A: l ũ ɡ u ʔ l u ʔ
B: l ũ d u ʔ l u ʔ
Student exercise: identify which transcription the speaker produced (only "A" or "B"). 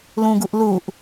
A